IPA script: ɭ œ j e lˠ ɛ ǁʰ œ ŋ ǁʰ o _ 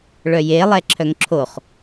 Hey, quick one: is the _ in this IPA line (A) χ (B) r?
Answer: A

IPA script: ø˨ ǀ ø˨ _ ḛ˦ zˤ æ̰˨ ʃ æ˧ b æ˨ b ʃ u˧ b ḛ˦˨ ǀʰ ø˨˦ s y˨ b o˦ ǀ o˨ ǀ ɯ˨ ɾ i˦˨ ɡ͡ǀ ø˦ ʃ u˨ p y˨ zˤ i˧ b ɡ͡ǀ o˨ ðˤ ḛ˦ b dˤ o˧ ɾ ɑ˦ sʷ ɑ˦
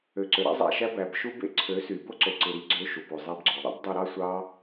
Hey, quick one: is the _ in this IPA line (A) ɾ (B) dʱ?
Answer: A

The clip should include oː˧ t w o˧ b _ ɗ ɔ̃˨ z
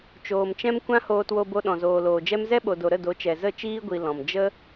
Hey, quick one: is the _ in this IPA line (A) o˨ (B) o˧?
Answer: B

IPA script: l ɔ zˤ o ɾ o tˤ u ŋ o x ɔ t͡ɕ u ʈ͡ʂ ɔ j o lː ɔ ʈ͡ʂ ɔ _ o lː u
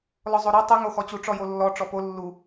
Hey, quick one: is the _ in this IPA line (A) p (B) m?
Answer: A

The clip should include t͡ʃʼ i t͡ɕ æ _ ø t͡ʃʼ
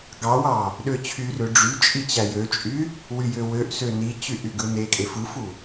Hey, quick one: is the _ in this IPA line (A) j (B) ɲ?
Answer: A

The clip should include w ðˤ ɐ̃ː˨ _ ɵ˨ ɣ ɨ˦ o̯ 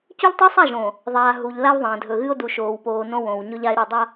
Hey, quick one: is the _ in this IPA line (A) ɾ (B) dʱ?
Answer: B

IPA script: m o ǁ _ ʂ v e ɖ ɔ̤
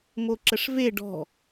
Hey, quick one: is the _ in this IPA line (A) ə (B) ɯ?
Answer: A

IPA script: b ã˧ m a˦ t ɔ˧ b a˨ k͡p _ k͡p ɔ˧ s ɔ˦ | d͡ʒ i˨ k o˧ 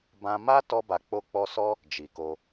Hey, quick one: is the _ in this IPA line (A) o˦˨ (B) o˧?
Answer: B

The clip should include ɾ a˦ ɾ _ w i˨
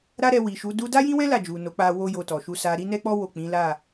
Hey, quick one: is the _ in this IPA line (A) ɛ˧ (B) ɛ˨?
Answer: A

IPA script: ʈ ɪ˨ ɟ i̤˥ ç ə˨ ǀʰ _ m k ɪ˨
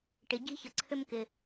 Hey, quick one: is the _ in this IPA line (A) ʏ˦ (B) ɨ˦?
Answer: A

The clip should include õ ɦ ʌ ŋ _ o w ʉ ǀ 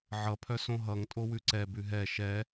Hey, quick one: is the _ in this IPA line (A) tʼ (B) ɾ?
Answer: A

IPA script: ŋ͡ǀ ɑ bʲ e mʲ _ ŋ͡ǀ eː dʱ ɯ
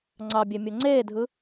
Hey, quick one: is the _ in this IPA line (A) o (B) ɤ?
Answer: A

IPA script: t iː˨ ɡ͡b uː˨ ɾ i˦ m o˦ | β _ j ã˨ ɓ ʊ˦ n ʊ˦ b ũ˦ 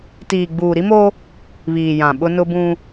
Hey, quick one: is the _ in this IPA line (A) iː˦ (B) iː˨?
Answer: B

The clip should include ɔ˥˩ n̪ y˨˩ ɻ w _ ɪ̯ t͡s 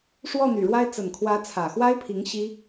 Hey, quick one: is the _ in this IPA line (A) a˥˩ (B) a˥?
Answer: B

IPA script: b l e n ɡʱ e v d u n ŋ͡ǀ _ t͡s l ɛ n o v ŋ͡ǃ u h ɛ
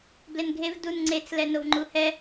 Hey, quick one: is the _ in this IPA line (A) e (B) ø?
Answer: A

